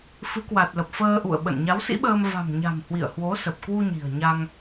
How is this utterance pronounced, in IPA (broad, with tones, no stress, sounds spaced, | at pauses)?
f ɨ˨˦ k w a˨˩ t̚ l ə˨˩ p̚ f əː˧ ʔ ṵ˧˨ ə̯ ɓ ə̰˧˨ n ɲ a˨˦ w s ḭ˧˥ ɓ əː˧ m v a̤˨˩ m ɲ a̤˨˩ m h w ḭ˧˨ ə̯ h w o˨˦ s ə˨˩ p̚ k w u˧ ɲ i̤˨˩ ə̯ ɲ a˧ ŋ